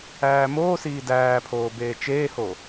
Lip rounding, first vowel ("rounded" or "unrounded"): unrounded